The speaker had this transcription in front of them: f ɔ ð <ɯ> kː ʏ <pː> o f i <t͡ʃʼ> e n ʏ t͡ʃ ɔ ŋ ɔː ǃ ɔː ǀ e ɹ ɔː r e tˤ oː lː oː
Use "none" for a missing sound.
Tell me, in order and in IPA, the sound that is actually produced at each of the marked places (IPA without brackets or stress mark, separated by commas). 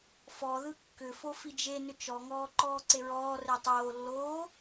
ɯ, f, d͡ʒ